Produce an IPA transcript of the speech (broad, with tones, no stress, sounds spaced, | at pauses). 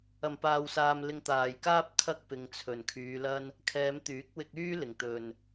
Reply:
ɐ˨˩ m p aː˨ w s aː˨ m l ɪ˨˧ ŋ t̪ aː˨˩ j k aː˥ p̚ kʰ ɐ˥ k̚ p ɪ˨ ŋ t͡sʰ ɵ˨˩ n kʰ yː˨˧ l ɐ˥ n | kʰ ɛː˨˧ m t̪ yː˨˥ k̚ w ɪ˧ k̚ yː˥ l ɪ˨˩ ŋ t̪ ɵ˨ n